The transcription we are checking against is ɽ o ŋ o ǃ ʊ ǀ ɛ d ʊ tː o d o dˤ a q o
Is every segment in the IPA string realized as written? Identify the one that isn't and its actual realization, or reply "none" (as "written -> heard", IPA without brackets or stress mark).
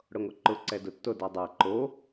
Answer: q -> ǃ